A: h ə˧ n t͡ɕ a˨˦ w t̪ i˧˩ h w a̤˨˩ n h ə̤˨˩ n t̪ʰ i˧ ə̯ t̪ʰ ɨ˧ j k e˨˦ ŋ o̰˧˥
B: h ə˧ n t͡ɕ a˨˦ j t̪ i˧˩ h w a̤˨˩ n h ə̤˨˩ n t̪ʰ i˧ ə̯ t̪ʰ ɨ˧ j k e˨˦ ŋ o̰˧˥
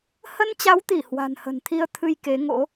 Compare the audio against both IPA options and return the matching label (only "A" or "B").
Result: A